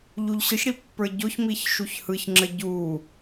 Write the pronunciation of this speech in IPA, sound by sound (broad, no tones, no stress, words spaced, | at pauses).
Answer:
ʎuʎɕɯçɽi pːə˞ɟoçmiç ʃuçhɯçŋ͡ǁə ɟu